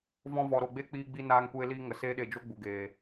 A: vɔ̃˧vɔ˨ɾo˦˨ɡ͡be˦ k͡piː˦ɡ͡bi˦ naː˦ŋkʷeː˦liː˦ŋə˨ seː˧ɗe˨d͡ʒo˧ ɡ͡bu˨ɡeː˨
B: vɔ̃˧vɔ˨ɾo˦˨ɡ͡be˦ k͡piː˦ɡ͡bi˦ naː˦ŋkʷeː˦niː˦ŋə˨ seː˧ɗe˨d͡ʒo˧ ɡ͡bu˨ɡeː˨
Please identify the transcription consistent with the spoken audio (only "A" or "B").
A